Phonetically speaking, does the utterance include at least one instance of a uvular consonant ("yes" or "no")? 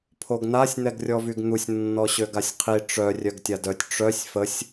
yes